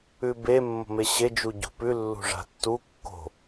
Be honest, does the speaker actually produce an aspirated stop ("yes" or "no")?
no